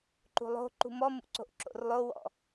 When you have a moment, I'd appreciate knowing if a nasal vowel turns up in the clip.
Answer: no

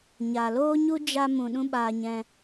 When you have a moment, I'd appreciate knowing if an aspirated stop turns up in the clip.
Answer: no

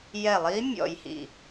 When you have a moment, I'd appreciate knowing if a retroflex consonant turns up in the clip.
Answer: no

